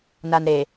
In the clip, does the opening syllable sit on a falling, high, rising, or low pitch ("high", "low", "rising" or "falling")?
low